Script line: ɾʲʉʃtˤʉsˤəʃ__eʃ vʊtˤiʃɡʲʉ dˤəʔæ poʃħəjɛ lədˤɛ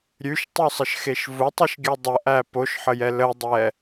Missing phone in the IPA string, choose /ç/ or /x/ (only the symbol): x